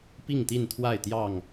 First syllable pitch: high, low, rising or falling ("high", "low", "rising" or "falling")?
falling